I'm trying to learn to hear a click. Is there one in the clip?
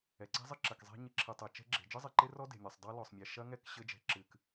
yes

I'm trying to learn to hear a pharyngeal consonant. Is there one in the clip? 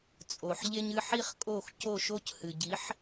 yes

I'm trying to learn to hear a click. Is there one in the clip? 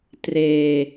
no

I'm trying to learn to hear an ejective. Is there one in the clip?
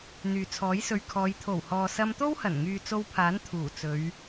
no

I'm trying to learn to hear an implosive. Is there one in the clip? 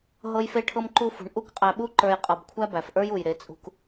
yes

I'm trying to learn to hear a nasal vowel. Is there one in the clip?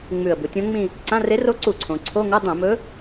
yes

